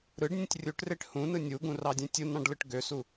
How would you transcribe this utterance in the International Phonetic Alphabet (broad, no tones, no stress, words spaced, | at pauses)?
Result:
ɾɯɖnʲũtʲ rʲuʈreʈ hũnɯ nʲuɡũrɑdʲẽ tʲunɑ̃ɖlɯʈ ɡøsu